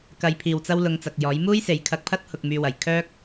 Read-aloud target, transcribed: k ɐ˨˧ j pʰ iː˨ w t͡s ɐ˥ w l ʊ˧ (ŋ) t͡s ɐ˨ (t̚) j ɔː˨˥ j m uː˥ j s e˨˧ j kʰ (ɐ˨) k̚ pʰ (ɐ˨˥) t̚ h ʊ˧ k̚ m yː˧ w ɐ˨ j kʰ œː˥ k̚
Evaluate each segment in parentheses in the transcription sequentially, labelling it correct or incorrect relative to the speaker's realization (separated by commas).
correct, incorrect, incorrect, incorrect